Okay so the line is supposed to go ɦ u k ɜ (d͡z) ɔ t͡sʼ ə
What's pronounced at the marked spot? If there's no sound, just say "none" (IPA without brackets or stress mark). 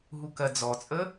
d͡z